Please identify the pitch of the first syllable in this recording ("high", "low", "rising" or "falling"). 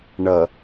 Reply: low